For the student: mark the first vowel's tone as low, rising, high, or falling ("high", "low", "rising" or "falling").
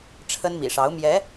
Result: high